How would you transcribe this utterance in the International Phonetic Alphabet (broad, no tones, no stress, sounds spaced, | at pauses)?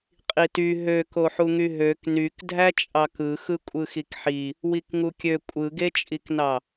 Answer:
qʼ i t y ɦ ø k o ħ u ŋ y ɦ ø k n y k dʱ æ t͡ʃʼ ɑ k ɯ x ɯ kʷʼ ɯ x i k ħ i | w i k ŋ u kʲ ø kʷʼ ɯ ɡ e t͡ʃʼ i k n ɑ